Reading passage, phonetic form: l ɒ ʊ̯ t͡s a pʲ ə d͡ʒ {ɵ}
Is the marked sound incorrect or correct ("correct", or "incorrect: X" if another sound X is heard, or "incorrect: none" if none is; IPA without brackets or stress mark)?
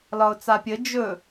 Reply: correct